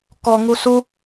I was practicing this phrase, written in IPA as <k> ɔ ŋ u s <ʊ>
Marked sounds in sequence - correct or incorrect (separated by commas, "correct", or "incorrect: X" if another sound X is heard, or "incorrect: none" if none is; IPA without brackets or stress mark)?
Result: correct, incorrect: u